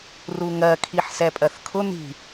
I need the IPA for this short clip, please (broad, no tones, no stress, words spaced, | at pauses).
ruŋɜ kʰiħsɛpʼɜθkʰʊ n̪i̤